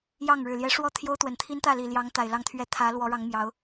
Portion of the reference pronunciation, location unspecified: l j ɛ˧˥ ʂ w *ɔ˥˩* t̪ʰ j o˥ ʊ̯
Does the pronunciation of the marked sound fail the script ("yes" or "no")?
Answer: yes